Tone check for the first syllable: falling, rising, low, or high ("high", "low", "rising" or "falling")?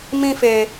high